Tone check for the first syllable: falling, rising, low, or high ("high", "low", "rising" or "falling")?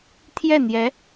falling